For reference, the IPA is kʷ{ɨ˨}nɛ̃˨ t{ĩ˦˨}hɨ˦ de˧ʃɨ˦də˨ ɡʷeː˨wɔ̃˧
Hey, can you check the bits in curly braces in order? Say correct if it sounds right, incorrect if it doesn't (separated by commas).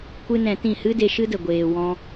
incorrect, correct